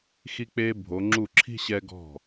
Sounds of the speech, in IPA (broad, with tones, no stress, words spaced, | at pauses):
xi˧k͡peː˧ bʱo˩˧ŋ͡ǁu˧˩ǁʰi̤˥˧ ɕɛ˧ɡɔ̤˧˩